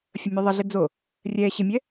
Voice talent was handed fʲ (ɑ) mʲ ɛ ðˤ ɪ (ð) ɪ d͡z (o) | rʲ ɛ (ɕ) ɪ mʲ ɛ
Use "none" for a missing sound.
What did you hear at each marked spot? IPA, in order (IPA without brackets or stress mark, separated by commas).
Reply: ə, ɮ, o, ɕ